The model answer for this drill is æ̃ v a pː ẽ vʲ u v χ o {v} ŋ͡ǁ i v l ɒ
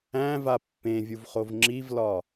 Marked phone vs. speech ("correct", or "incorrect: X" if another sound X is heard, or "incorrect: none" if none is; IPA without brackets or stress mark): correct